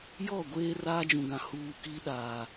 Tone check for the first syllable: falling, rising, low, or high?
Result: falling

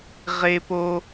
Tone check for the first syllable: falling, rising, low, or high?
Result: high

